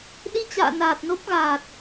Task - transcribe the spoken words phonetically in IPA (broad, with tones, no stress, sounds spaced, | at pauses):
ɗ i˧ t͡ɕ a̰ː˧˨ n aː˨˩ t̚ n o˦˥ p̚ ɣ aː˨˩ t̚